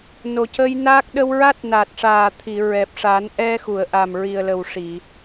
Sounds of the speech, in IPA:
no˨˩cə˧jnaː˦˥k̚ ɗə˧wɹa˦˥t̚ na˨˩t̚ʂaː˨˩ t̪ʰi˨˩˨ ɹɛ˨˩p̚ʂa˨˩˦n ʔɛ˧xu˨˩˨ə̯ʔa˨˩m ɹi˨˩ə̯lə˨˩wʂi˨˩˨

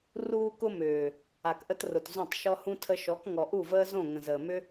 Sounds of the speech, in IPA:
ruː˧kʊ˧ mʏː˨ | a˨kʔə˧trʊ˨t zũ˦˨tˤʃɔ˦hũ˦ tʰə˧ʃɔ˨˦k ŋɔ˨ʔu˦˨vəː˦zõ˦˨ ŋə̃˨zəː˨mʏ˦

